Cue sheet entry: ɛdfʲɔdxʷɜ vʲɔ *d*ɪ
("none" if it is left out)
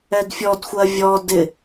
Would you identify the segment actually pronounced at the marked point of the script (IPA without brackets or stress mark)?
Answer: d